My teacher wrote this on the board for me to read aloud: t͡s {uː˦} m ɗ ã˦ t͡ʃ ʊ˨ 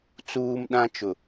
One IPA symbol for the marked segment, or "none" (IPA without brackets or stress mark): uː˦